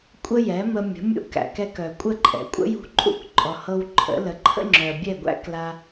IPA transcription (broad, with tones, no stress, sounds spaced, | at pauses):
kʷʼ ə˥ j ɛ˩˥ m ə˧ mʲ ə̤˩˥ mʲ ṵ˧ k æ̰˩ k ɛ˧ k œ˩ kʷʼ ə˥˩ ǃʼ ɛ̰˩ kʷʼ ə̰˥ j ṳ˧ ǃʼ ṵ˥˩ k ǃʼ ɔ˩ h ɤ˧ w ǃʰ ə̰˩˥ l ə˩˥ ǃʰ ə̰˥ ŋ͡ǁ œ˩ bʲ ɛ˥˩ ɡʷ æ̰˥ k l a˧